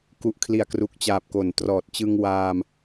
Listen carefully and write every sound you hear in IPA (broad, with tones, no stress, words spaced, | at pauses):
ku˨˩ʔkʰli˨˩a̯kru˨˩k̚t͡ɕaː˨˩p̚ ko˨˩ntrɔː˨˩t̚ t͡ɕɯ˧ŋwaː˧m